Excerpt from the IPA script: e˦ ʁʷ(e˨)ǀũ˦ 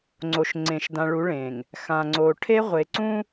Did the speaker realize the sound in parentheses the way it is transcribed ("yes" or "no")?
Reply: yes